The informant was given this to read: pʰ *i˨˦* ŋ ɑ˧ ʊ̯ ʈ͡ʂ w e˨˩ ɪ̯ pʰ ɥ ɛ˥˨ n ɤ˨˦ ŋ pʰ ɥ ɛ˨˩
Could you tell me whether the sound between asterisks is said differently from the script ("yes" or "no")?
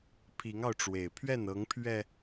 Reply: no